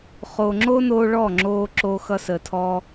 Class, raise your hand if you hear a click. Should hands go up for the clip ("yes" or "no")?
yes